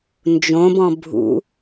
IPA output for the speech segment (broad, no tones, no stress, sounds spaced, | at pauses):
n d͡ʒ õ b ɔ̃ bʱ ṵ